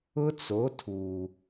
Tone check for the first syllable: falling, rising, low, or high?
high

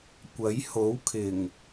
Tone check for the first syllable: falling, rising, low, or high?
rising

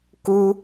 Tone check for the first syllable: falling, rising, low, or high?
high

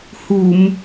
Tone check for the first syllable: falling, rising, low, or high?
low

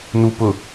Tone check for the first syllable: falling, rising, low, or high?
low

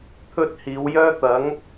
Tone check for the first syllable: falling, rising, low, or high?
high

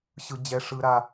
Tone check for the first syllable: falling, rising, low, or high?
high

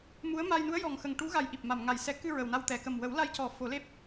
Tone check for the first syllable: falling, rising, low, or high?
rising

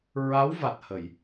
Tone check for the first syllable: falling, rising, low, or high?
rising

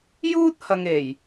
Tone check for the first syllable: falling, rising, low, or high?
high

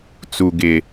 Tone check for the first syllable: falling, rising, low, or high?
low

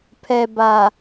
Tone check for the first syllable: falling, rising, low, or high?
low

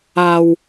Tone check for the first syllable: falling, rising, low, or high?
low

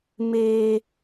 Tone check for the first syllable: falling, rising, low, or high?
high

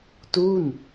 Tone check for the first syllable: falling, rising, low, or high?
falling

